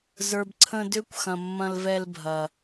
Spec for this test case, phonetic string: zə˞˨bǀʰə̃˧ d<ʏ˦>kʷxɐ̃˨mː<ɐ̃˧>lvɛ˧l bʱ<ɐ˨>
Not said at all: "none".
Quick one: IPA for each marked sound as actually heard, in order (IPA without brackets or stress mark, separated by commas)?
ʏ˦, ɐ̃˧, ɐ˨